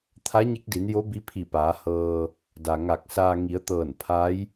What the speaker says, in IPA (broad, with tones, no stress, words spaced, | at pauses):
t̪ʰa˧˥ɲe˧˥k̚di˩˧njo˧˥ bi˧˥pʰi˧˩paː˩˧hɤː˧ | da˩ŋa˧˩k̚saː˧ ŋi˩˧ə̯t̪ɤː˧˩n pʰa˧˥j